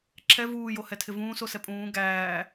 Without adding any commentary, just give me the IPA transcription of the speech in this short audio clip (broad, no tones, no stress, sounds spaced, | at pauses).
ǁʰ ɛ v uː j o h ɛ tʰ ɪ v ũː s o s ɛ pʼ ũː ɡ æː